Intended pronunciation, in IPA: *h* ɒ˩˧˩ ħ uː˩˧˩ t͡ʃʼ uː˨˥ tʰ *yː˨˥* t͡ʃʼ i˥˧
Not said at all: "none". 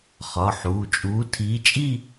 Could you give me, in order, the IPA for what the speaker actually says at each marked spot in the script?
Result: χ, iː˨˥

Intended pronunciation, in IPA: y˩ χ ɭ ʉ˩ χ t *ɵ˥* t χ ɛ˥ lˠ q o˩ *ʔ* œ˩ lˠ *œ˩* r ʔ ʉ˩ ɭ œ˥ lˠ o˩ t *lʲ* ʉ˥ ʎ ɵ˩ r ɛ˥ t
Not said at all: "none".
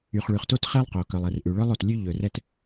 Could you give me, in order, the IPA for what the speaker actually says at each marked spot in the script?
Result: o˥, k, ɛ˩, lʲ

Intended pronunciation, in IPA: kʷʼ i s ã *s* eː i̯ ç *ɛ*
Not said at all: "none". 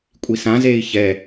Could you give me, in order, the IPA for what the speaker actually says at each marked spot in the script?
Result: z, ɛ

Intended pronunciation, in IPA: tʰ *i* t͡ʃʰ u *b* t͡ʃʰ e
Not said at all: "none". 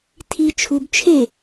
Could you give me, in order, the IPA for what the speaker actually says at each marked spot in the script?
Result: i, b

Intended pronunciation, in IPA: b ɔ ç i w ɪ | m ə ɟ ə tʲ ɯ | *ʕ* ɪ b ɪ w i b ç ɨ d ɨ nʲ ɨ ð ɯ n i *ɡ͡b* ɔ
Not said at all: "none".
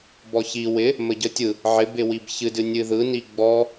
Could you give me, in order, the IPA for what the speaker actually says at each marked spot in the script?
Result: ʕ, ɡ͡b

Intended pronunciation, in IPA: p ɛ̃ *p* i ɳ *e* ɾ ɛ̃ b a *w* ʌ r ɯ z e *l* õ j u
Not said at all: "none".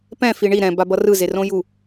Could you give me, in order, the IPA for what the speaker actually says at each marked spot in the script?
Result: f, i, b, r

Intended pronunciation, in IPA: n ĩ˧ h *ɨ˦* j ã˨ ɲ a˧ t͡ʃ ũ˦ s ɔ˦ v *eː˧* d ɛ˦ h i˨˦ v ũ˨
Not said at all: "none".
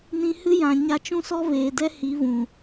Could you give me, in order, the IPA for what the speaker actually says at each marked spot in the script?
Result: ɨ˦, eː˨

